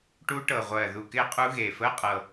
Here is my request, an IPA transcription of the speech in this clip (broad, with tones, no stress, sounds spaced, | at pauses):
ʈ u˦˥ ʈ ɤ˨˩ ʁʷ ɜː˨˩ ð u˨˩ k ɪː˦˥ qʼ u˦˥ ɣ eː˨˩ f əː˧˥˧ qʼ ɤ˨˩